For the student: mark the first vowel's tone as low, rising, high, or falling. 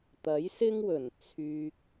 rising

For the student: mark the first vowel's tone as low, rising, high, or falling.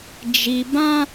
low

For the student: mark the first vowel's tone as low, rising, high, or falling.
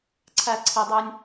low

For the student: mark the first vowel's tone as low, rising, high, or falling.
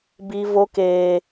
high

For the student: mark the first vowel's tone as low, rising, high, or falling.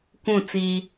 falling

